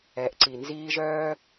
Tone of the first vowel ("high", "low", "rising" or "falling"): rising